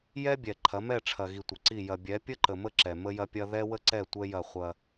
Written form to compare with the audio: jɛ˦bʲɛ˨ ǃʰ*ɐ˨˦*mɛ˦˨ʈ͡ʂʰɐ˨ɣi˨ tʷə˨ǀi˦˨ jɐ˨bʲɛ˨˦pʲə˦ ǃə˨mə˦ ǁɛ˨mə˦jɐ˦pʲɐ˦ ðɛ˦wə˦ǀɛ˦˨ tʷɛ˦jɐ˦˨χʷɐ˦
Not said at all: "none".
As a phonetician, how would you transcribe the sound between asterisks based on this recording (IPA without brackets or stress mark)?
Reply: ɐ˨˦